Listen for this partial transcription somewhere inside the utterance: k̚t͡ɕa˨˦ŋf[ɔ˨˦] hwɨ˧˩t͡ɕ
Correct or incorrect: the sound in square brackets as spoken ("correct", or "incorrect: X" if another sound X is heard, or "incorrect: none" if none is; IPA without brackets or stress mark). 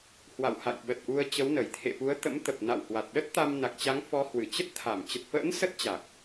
correct